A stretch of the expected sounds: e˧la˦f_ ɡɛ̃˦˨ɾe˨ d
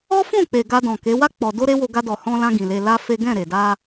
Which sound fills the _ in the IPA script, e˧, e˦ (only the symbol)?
e˦